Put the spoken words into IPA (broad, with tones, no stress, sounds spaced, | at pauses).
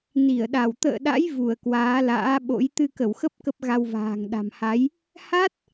n i˧˩ ə̯ ɗ a˧˩ w t̪ ə̰ː˧˨ ɗ a̰˧˥ j v u˧˩ ə̯ k w aː˨˦ l a̰ː˧˥ ɓ o̰˧˥ j t̪ ɨ˧ k ə˧˩ w x ə˦˥ p̚ k ə˦˥ p̚ ɣ a˧ w v a̤ː˨˩ ŋ ɗ a̤˨˩ m h a˨˦ j | h a˦˥ t̚